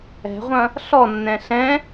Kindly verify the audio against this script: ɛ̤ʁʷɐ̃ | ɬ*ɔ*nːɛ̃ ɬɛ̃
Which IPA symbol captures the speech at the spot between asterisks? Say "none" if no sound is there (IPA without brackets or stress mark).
ɔ